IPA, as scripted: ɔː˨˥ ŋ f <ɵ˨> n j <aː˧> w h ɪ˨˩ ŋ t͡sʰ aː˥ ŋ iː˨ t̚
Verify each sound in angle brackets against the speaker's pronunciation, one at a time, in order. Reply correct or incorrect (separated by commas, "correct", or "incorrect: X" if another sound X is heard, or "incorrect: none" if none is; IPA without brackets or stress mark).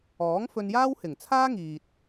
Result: incorrect: ɵ˧, incorrect: aː˥